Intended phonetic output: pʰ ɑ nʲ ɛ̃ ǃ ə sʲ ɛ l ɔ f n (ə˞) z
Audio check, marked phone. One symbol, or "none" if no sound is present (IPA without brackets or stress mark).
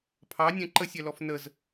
ə